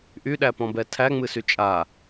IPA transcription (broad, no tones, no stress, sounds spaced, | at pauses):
ʔ y ɗ æ p ɔ̃ b ɛ tʰ æ ŋ͡m ɨ s y t͡ʃʼ a